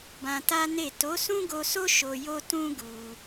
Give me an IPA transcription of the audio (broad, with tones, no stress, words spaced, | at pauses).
bã˧ta˦ne˦˨ to˨˦sũ˦ɡo˧so˦ ʃo˧jo˦ tũ˦ ɡu˧